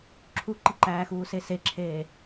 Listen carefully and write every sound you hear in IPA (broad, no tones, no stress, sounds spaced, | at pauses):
ǁʰ u ǃ i ǃ æː x uː s e s e ǁʰ eː